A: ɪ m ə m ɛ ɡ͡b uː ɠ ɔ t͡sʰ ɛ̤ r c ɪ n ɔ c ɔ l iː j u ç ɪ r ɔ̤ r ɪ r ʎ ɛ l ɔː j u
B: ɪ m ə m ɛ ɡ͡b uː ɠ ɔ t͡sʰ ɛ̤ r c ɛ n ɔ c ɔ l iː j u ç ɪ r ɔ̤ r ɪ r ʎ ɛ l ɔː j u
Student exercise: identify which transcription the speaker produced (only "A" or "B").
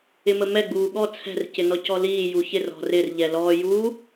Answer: A